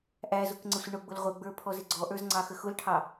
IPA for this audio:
ʔ æ z ʊ k ŋ͡ǀ ə sʷ ɪ ɳ ʊ ɡ͡b ʊ l ʁʷ ə ɡ͡b ə˞ pʰ ɔ z ɪ ɡ͡ǀ ɔ ʔ ə˞ z ŋ͡ǀ ɑ x ə x ʊ l ʈʰ ɑ

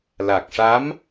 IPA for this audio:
l a˨˩ k̚ ʂ a˧˥ m

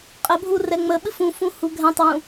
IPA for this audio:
qʼ ə bʱ u r ɛ ŋ͡m ə ɓ ɨ f ũ f ũ h u ɡʱ ɛ̃ tˤ w ũ

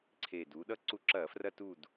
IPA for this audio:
ǀʰ eː˨˩ d uː˩˧ ɗ ʌ˦˨ ǀ u˧˩˧ ǁ ɐː˧˩˧ f r ɐ˦˨ t u˦˨ d

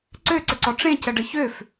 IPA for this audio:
ǀ ø ǀ ə ǀ ɔ ʈ͡ʂ ẽ c ə ɖ ə ç ø f

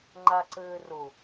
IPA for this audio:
ŋ͡ǃ a ǀ ɘː r ʊ

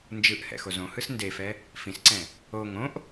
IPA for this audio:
n d͡ʒ ɯ ʔ h ɛ̰ x o z õ h ɯ s n d e f ɛ | f ĩ s ǀ ɛ̃ | o ŋ õ ʔ

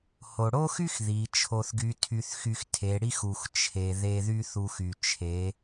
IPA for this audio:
h o˩ ɽ o˥ x y˥ x ð i˩˧ t͡ʃʰ o˧ θ ɡ y˧˥ tʰ y˧ θ x y˧ x tʰ e˩˧ ɽ i˥ x u˩ x t͡ʃʰ e˩ ð e˧ ð y˥ θ u˧ x y˩ t͡ʃʰ e˩˧

